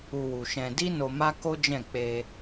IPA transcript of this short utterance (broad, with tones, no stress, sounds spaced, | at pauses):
u˧ w u˨ ʃ ɛ̃˧ d i˦ n o˧ m a˦ k o˦ d͡ʒ ɛ̃˦˨ k͡p e˧